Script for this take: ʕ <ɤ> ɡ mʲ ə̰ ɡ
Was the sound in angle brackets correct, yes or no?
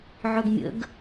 no